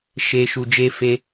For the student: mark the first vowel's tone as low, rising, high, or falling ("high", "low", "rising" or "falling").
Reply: low